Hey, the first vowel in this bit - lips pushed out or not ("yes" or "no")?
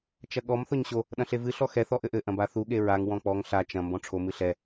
no